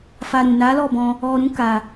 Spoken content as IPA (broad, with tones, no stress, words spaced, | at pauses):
fa˧ɾũ˨ na˨˦lɔ˦˨bɔ̃˧ | ɔ˧ɾũ˦ ka˧